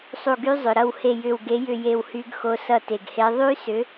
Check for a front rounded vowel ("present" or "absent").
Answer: present